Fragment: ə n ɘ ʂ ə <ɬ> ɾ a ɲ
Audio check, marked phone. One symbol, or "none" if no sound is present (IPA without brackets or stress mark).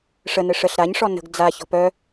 ɬ